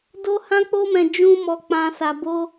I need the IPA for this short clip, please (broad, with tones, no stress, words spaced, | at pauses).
do˧ hã˧k͡po˧mɛ̃˨ d͡ʒũ˧mɔ˨k͡pã˨ sa˨bo˧